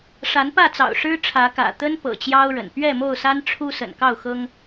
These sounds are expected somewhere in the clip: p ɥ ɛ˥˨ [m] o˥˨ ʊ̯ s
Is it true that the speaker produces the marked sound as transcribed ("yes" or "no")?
yes